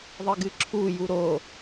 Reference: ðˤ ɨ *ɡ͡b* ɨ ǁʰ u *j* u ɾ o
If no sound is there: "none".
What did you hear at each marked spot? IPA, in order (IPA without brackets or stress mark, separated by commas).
ɡ, j